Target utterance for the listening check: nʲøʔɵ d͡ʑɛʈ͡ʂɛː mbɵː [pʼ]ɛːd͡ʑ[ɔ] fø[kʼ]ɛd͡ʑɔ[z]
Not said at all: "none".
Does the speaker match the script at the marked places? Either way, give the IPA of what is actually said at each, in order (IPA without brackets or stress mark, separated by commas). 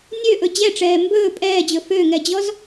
pʼ, ɵ, ŋ, z